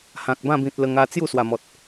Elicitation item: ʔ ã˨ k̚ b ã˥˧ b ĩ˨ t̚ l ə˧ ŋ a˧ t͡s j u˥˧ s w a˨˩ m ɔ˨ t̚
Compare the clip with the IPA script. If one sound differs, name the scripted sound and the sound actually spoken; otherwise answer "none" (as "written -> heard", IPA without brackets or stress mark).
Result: ʔ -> h